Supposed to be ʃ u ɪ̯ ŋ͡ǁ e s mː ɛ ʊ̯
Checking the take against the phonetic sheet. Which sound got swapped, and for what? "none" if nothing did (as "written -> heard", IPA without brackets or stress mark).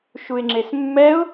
none